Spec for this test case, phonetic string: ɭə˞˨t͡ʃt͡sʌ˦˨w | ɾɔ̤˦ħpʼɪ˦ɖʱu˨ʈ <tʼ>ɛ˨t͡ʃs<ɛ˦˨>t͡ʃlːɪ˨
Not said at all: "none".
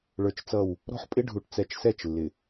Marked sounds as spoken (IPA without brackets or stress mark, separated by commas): t͡s, ɛ˦˨